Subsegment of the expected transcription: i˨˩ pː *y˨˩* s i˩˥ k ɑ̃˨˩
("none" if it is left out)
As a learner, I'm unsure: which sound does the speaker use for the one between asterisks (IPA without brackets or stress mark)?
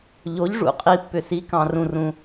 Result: ʏ˨˩